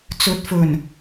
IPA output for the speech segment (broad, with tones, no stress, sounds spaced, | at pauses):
t͡s ɵ˨˥ t̚ f ɵ˨˩ n